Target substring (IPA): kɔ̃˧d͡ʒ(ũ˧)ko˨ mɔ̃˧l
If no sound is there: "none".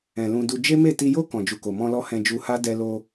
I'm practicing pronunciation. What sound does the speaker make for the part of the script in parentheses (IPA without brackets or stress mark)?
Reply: u˧